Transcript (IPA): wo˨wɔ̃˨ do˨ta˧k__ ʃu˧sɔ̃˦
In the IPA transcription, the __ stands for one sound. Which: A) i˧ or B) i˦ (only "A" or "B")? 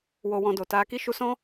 B